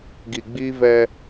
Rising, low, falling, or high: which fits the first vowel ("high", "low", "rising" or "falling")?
low